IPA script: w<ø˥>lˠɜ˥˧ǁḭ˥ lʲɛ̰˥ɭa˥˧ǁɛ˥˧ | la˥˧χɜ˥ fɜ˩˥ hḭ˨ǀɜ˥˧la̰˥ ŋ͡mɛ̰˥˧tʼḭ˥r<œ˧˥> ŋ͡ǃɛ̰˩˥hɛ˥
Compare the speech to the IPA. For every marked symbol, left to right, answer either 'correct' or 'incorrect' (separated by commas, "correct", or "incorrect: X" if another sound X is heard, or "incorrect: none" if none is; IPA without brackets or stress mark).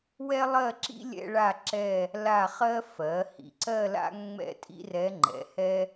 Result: incorrect: ɛ˥, incorrect: ɛ˧˥